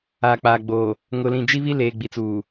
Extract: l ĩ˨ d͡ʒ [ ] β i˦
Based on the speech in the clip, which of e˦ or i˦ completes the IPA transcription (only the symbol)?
i˦